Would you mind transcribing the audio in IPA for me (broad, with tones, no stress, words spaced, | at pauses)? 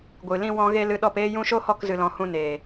ɡʷɨ˨lĩ˧wɔ̃˧ɣe˧ lɨ˧ɗɔ˦˨peː˦jũ˦ ʃo˦hɔ˦˨k zɨ˧lɔ̃˧ hũ˧neː˨